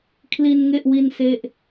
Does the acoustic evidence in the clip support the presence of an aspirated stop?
yes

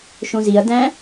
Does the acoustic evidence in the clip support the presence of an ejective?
no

